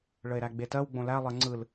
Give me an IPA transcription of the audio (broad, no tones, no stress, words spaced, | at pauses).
ɭəe̯ɾæɡ͡betɜw ɡ͡bõlælˠɜ ŋ͡ǀɯl